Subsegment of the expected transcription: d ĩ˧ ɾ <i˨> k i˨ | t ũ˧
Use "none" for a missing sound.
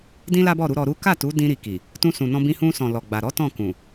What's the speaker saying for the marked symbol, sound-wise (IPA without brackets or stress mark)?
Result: i˨